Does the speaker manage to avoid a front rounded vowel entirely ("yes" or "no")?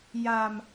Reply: yes